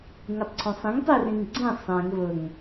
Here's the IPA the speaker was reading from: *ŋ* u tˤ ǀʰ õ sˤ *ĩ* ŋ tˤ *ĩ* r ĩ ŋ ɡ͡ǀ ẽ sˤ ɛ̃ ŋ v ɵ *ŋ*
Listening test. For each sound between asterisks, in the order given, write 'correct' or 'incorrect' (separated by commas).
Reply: correct, incorrect, incorrect, correct